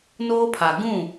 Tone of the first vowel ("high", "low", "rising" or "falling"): high